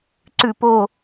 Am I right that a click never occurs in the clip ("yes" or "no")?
no